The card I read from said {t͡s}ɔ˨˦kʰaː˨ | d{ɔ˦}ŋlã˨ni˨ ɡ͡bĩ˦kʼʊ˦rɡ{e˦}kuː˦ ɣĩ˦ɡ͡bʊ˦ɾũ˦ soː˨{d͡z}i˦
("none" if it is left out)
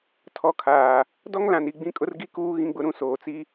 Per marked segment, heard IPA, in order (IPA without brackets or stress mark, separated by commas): tʰ, ɔ˦, i˦, t͡s